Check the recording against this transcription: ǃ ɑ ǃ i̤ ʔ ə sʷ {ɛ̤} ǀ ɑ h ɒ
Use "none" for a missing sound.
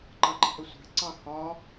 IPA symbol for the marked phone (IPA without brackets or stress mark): æ̤